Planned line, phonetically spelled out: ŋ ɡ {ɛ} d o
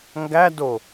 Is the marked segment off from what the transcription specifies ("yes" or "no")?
yes